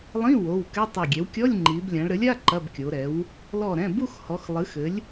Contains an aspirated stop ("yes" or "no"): no